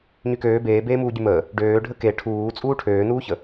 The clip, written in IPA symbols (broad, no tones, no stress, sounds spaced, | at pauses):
ɲ y k øː b eː b eː m uː ɟ y m əː | ɖ øː ɖʱ ə k e ʈʰ uː t͡sʼ uː ʈʰ øː n uː ç ə